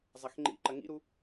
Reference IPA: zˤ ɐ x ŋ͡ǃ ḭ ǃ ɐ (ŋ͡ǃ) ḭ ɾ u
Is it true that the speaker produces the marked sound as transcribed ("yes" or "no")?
no